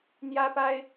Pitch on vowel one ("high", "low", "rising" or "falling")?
high